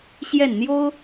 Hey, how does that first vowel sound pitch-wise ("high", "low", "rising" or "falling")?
falling